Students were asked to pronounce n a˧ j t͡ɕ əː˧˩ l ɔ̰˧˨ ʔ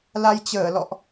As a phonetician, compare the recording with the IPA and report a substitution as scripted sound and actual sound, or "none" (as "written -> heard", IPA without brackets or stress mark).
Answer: n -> l